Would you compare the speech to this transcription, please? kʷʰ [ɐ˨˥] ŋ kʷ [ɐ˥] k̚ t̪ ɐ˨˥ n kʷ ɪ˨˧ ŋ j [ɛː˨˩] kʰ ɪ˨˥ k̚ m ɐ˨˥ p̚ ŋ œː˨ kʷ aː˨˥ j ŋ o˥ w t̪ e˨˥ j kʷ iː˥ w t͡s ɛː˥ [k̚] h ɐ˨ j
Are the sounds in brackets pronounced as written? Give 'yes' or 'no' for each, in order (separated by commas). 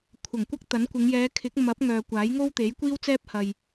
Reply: no, yes, no, no